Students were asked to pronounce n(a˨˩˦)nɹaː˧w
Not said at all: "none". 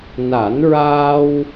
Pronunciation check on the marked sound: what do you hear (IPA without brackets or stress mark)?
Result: a˨˩˦